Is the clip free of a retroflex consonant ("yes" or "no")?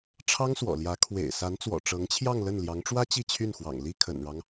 no